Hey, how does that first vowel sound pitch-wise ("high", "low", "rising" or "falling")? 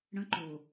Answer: high